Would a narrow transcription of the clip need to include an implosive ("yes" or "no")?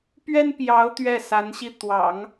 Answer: no